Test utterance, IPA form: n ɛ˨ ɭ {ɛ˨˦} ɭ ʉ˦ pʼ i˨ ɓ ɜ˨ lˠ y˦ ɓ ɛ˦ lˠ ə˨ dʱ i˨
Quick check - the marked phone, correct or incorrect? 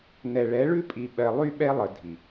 correct